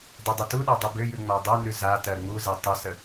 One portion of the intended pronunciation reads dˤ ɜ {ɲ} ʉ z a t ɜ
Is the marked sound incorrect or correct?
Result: incorrect: n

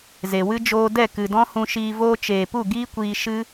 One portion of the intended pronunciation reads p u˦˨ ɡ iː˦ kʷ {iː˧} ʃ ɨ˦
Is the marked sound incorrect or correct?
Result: correct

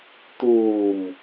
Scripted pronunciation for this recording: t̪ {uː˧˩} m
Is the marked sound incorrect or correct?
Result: correct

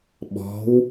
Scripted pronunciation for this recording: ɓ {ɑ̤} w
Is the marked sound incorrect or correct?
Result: incorrect: ɔ̤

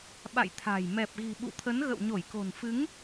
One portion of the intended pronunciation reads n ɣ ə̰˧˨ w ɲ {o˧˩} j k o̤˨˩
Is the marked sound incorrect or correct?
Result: correct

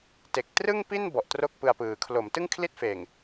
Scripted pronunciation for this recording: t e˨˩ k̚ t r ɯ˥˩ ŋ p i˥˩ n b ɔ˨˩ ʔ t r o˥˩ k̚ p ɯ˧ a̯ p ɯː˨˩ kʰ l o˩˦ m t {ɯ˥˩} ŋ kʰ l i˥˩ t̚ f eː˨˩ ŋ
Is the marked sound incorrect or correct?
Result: correct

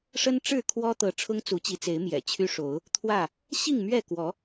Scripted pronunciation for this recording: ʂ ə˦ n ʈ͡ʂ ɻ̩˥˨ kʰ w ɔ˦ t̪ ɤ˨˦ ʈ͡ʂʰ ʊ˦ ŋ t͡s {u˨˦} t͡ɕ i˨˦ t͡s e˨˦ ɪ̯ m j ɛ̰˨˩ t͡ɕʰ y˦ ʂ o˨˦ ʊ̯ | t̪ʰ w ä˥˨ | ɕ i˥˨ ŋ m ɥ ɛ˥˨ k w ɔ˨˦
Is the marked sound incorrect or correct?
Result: correct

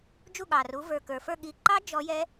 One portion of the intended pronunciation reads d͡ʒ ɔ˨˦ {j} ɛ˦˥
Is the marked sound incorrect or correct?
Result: correct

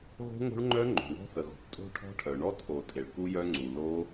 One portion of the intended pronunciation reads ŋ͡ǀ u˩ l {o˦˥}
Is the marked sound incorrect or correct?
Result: correct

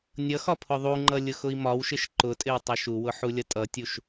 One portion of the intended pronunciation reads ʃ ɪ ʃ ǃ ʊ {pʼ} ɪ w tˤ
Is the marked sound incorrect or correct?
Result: incorrect: tʼ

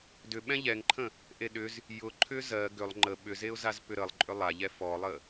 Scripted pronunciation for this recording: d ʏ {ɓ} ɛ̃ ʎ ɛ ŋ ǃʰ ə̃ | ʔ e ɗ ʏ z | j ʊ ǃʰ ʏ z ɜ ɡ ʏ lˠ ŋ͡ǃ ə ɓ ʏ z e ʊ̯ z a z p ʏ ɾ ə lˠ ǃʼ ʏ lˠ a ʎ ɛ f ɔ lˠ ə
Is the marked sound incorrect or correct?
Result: correct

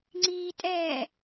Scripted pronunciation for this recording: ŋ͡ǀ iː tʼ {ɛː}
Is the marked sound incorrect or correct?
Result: correct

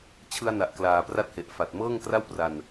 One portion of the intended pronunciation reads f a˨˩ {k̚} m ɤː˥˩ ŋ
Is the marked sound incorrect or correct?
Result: incorrect: t̚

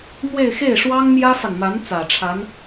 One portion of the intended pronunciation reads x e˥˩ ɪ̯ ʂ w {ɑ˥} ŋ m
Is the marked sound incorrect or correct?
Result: correct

